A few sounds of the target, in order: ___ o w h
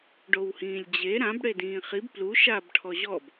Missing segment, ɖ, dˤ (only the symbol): ɖ